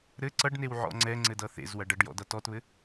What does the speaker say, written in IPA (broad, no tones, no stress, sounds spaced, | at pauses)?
ɾ ɘ ǀ ʌ ɖ n e w ʕ ɔ̰ ŋ͡ǀ ɛ ŋ͡ǀ ɘ d ʌ θ ḛ z w ɐ ɖ ɐ ɖ j ɔ̰ d ʌ t ɔ t β ɘ